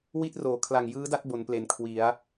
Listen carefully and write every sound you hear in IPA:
wi˥˩t̚ roː˩˦kʰla˨˩ŋjɯː˦˥da˥˩t̚ bo˩˦nple˩˦n kʰwi˩˦a̯

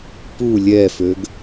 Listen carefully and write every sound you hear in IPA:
pu lʲɛføɡ

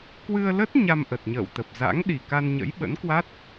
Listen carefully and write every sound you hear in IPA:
kwɨ˧ə̯lə˦˥t̚ ɲa˧mʔə˨˩t̚ɲə̰ː˧˨wt̪ə˨˩p̚ za̰˧˥ŋɗi˨˩ ka˧nɲə̰˧˥jɓə̰˧˥nkwa˦˥t̚

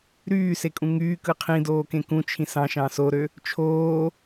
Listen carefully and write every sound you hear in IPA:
ɾyːsekʼũ ŋyːkɯ qʰĩdoːkẽ kũt͡ʃʰĩ sɑ̃ʃɑ̃ soɾø | t͡ʃʰoː

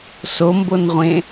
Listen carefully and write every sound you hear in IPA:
sombonʁʷẽ

